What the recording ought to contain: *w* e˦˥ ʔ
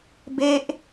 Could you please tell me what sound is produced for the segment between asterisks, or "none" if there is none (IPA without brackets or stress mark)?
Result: b